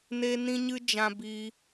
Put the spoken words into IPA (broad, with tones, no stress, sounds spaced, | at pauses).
n e˧ n ĩ˧ ɲ ɨ˧ d͡ʒ ã˧ b iː˧